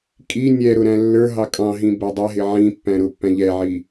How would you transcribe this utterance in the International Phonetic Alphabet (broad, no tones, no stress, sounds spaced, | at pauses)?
kʼ i nʲ ɛ ɾ ʊ ɾ æ̃ lː ə˞ ɦ ɑ kʼ ɑ̃ ɦ ĩ b æ dˤ ɛ ɦ ɪ ʕ ĩ pː æ̃ ɾ ʊ pː æ̃ ʎ ɛ ʕ i